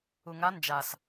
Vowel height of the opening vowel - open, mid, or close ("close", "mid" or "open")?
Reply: close